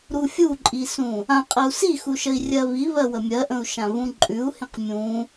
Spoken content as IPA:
ɾ u fʲ u ǃʼ i s ũ | ã qʼ ə u̯ s i x u ʃ ə i̯ rʲ ɜ β i β ɜ w ə mʲ ɜ ʔ ə̃ u̯ ʃ ã v ũ ǃʼ ʉ u̯ h ĩ q mʲ ũ

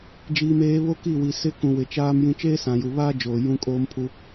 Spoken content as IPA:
d͡ʒ iː˨ m eː˨˦ β o˦ k i˦˨ w i˨ s ɪ˦ k ũ˨ w ɪ˨ t͡ʃ aː˦ m j ĩ˦ t͡ʃ eː˦ s ã˨ j u˨ β aː˦ d͡ʒ oː˨ j ũ˦ kʼ oː˦ m pʰ u˦

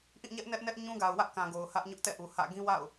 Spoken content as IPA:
ʔ ĩ˦˨ ɲ ɛ˦ ʔ n ɛ˦ ʔ n ɛ˦ ʔ ɲ ũ˦ ɡ a˨ ʊ̯ w ä˦ ʔ k ã˨ ɡ o˨ ʊ̯ h ä˦ ʔ ɲ ʊ˦ ʔ t ɛ̰˦˨ ʔ u˨ h ä̰˦˨ ɡ ĩ˦ w a̰˦˨ ʊ̯

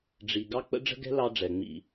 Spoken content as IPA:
ɖ͡ʐ i˨ ɡ ɑ˦ k͡p ə̰˦ ɖ͡ʐ ə̤˦ ɡ ɛ̤˦ l ɑ˦ ɖ͡ʐ ɛ˨ ŋ͡m ḭ˨

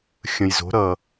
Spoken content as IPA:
xʲ ə̃˧ j z o̤˧˥ ɾ ʌ˧

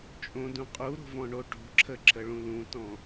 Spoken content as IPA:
t͡ʃʼ õ d ũ qʼ u ɾ o̤ v ɔ̃ ɳ o ʈ o̤ ǁʰ ə ǁʰ ə ɭ ũ l ũ t ɔ̃

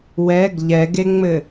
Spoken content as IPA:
w ɛ ɡ ʎ ɛ ɡ e ŋ͡m ɘ

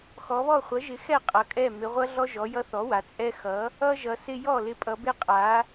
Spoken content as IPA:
x ɔ˩˧ β ɔ˥˩ χʷ ʌ˩˥ ʒ ɪ˩˥ x ɛ˥˩ qʼ ʌ˩˧ kʼ ɛ˥˩ m ɪ˩˧ ʁʷ ʌ˦ ɮ ɔ˦ ʒ ɔ˩˧ j ʌ˦ θ ɔ˩˥ w a˩˧ t͡sʼ ɛ˦ x ʌ˩˥ | ʌ˦ ʒ ʌ˩˧ s ɪ˦ j ɔ˥˩ l ɪ˩˥ pʼ ʌ˩˧ b ɪ˥˩ qʼ a˩˥

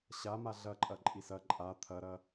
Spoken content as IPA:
ɕ a m a ɮ ɐ ǃʼ ɐ ǃʼ i s ɐ ǃʼ a t̪ʰ ɐ ɾ ɐ

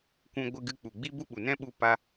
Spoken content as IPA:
kʷ ũ˧ ɡʷ ɨ˧ ɡ ɨ˧ k͡p u˨ ɡ͡b i˦ b u˦ ɓ u˨ n ɛ̃˦ ɓ u˧ p a˧

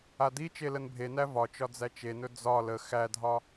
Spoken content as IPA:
a d i t͡ʃ e l ə n bʱ e n æ v ɒ t͡ʃ ɒ d͡z æ t͡ʃ e n ɵ d͡z ɒ l ə x æ dʱ ɒ

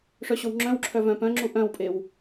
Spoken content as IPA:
ʂ œ ɕ o w ŋ͡ǁ œ̃ w ǁʰ œ v œ̃ p œ̃ ŋ͡ǁ u ʔ œ̃ w pʼ e w

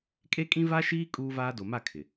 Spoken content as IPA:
kʼ e˦ kʼ ĩ˦ v a˦ ʃ iː˦ kʼ uː˦ v aː˦ d o˨ m a˦˨ kʰ ɪ˨

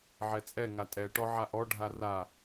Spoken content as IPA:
ʕ ɛ t͡sʼ ɛ ŋ a tʼ ɛ ʈ ɔ ʕ a ʔ ɔ ɖʱ a r a

